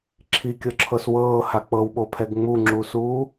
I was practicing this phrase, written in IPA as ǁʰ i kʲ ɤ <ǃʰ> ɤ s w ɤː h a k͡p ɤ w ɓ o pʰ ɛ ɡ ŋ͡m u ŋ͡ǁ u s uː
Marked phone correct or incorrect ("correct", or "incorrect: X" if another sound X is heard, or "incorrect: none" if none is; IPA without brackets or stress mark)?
incorrect: ǁʰ